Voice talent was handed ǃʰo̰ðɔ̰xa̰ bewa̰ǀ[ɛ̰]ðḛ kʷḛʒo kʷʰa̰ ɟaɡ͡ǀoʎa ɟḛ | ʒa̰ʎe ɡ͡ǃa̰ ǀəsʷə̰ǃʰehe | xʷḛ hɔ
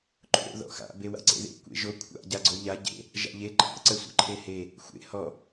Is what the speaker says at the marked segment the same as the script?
no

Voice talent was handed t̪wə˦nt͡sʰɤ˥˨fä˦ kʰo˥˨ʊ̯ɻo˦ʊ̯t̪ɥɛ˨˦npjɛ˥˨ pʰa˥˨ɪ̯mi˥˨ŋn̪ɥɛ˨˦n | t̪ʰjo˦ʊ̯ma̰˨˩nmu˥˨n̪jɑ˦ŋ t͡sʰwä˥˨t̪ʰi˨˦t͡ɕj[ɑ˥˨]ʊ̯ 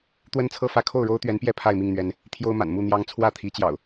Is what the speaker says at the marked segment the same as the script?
no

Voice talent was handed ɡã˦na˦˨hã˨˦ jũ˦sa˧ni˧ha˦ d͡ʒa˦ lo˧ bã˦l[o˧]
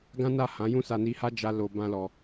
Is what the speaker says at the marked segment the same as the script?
no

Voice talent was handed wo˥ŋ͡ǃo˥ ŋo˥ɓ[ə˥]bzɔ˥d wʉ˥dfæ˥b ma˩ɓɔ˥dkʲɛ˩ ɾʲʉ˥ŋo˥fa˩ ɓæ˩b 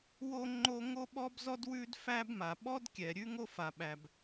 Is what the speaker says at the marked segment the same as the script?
no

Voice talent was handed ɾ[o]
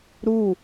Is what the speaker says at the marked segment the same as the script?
no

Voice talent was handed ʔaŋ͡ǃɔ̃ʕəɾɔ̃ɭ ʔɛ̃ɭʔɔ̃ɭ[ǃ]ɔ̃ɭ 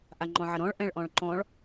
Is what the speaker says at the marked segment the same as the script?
yes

